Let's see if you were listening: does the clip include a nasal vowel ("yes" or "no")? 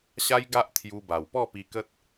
no